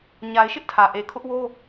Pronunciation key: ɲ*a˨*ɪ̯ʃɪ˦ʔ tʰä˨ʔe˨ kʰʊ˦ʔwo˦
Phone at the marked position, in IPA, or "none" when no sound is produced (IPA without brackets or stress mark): a˨